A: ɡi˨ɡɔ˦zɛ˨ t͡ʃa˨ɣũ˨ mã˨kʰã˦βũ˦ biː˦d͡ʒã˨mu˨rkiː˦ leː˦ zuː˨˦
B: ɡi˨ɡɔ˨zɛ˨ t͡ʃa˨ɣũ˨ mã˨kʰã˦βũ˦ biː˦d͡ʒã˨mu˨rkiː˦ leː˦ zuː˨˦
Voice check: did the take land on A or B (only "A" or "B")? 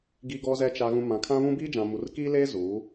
B